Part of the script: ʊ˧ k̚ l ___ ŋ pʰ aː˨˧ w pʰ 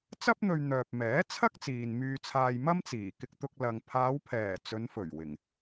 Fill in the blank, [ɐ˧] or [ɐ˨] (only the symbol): ɐ˨